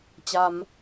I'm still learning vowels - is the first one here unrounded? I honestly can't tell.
yes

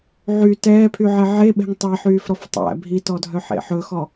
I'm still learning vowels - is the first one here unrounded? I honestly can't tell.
no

